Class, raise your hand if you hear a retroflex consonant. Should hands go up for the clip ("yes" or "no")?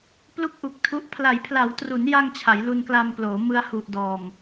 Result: no